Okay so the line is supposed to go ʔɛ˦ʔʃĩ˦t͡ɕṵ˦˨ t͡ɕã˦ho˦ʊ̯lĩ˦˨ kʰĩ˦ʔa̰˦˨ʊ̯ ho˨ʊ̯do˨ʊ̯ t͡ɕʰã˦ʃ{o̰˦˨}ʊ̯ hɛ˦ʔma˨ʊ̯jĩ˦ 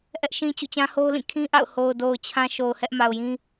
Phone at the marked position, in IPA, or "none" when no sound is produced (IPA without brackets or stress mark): o˨